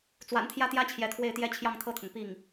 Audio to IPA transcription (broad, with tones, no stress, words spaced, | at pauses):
t͡swa̰˨˩nt̪ʰjä˥t̪jä˥ t͡ɕʰjɛ˧˥t̪ʰwe˥˩ɪ̯t̪jɛ˥ t͡ɕʰjɑ˥˧ŋt̪ʰɤ˥˩t̪ʰʊ˩ŋ pi˥˩ŋ